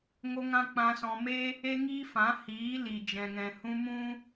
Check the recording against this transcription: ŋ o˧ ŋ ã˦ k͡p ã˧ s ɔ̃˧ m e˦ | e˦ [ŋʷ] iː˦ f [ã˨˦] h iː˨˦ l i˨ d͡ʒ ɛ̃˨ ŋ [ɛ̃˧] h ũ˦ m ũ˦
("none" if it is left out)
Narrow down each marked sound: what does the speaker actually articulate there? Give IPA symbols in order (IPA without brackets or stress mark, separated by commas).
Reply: ŋ, ã˨˦, ɛ̃˨